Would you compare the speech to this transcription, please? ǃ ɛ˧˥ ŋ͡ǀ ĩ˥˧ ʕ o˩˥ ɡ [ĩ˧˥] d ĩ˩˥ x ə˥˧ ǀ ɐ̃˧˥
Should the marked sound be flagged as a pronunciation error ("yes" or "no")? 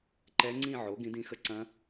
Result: no